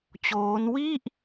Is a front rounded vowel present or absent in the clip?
absent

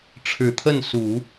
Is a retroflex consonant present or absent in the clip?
present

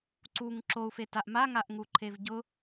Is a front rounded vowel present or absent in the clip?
absent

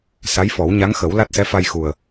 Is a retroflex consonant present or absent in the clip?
absent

